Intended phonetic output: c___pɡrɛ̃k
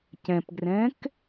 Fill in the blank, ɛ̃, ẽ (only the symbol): ɛ̃